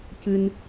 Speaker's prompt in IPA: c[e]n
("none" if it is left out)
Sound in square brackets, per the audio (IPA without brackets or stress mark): ɨ